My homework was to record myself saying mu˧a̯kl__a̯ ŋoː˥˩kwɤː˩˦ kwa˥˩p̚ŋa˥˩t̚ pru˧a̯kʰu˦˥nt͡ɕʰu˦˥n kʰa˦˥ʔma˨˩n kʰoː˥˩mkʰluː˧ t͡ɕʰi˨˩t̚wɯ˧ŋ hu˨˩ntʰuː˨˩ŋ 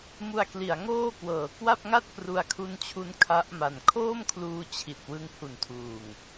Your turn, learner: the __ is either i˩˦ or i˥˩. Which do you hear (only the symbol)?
i˩˦